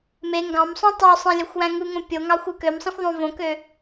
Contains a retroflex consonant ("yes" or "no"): no